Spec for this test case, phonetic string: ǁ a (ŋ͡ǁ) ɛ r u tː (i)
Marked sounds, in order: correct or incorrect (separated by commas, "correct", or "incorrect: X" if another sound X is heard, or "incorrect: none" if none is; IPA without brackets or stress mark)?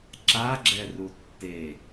incorrect: ɡ͡ǁ, incorrect: e